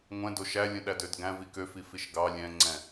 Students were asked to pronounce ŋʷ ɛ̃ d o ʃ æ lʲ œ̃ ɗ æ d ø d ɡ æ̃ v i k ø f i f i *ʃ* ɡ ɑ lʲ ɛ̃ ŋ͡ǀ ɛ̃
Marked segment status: correct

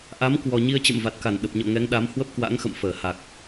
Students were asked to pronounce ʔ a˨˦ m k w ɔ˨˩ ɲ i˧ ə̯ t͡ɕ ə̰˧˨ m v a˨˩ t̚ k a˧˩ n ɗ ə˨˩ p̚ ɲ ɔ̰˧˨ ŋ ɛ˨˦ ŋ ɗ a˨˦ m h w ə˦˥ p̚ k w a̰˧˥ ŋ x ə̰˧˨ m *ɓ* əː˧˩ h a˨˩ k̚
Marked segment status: incorrect: f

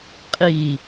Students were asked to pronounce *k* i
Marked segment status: incorrect: qʼ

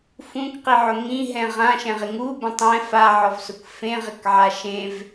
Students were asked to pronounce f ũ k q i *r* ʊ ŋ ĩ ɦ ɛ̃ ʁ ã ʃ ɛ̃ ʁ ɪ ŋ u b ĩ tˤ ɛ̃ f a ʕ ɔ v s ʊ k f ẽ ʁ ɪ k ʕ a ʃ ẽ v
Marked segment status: incorrect: ʕ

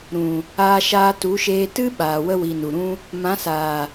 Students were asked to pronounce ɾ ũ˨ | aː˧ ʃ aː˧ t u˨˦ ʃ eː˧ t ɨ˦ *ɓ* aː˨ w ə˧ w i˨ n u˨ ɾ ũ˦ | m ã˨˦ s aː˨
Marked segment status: correct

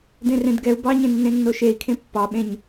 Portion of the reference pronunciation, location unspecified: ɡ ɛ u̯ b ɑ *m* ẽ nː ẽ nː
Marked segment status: incorrect: ɲ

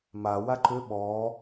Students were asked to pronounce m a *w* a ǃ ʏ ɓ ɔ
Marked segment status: correct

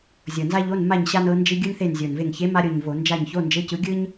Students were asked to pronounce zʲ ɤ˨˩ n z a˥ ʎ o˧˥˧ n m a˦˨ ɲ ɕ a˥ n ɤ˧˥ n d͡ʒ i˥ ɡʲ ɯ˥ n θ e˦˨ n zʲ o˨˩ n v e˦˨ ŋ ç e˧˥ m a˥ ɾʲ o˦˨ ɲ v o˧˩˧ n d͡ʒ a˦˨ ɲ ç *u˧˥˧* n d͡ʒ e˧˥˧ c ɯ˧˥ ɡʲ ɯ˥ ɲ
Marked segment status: incorrect: o˧˥˧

